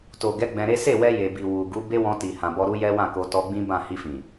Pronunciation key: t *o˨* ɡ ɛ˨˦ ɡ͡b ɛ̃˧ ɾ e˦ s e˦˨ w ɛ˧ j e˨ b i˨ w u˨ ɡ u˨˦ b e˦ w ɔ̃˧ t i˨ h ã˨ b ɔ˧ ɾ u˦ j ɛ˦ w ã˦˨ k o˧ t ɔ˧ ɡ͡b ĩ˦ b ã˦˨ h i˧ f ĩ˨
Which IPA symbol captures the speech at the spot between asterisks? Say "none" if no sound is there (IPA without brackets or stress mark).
o˨